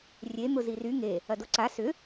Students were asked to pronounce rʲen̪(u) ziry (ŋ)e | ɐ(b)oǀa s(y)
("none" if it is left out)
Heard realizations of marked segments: ʊ, ŋ, d, ʏ

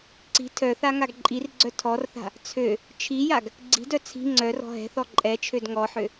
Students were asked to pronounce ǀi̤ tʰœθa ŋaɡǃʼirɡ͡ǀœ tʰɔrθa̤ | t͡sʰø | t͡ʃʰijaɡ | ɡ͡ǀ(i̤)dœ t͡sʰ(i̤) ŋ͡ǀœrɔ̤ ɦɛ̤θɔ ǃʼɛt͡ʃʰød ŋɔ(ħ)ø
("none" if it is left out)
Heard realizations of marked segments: i̤, i̤, ħ

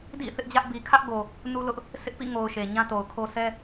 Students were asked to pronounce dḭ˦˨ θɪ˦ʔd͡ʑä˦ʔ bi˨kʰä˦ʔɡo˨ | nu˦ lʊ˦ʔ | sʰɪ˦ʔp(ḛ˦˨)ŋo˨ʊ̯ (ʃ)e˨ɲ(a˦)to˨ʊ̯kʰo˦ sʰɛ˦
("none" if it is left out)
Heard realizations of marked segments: ḭ˦˨, ʃ, ã˦

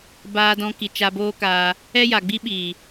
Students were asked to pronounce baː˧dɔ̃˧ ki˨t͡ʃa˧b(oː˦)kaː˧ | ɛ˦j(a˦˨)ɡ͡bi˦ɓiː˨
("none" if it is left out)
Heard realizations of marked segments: oː˦, a˨

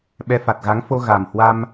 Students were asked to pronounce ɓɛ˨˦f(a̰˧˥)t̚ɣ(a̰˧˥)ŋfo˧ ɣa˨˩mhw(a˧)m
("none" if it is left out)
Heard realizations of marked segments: a˨˩, a˨˦, a˧

